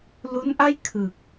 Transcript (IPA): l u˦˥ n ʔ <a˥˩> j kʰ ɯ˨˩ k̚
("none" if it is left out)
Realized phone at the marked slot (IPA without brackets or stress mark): a˥˩